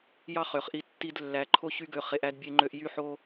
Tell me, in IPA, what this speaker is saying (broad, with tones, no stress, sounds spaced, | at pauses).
j ɑ˦˨ χ ø˨ χ ʔ i˧ tː i˦ d lː æ˧ ǃʰ o˦ ç y˦ ɡ ø˧ χ e˧ ʔ æ˦ d bʲ e˧ ŋ͡ǃ ø˧ ʔ j y˦ ħ o˦